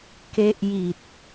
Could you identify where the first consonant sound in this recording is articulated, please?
velar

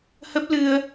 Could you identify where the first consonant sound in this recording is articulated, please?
glottal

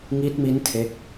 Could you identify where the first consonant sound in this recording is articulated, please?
velar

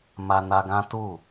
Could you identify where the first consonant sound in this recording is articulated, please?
labial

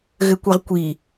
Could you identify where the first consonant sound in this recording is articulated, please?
velar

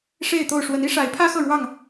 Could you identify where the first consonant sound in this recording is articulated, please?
retroflex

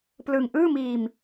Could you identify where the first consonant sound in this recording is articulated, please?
labial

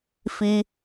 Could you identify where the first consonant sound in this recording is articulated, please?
labial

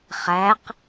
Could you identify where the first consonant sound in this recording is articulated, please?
uvular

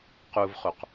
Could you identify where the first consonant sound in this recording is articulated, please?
uvular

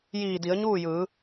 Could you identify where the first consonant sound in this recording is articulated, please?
palatal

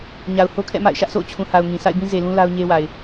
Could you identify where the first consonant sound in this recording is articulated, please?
palatal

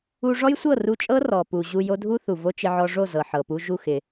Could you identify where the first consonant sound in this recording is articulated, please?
retroflex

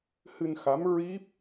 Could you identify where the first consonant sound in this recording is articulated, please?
glottal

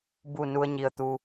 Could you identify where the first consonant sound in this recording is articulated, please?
labial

